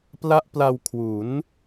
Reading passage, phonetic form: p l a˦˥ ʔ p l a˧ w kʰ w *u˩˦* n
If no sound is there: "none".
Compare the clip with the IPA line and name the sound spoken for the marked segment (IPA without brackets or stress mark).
u˩˦